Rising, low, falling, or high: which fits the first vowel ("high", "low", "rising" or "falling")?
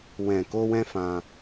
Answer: low